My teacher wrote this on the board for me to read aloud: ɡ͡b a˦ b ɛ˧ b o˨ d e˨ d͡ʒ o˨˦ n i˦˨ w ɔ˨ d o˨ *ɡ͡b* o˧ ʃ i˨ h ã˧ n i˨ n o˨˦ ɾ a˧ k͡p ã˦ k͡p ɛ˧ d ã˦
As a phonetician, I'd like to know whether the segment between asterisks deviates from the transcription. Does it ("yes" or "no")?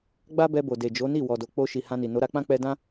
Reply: yes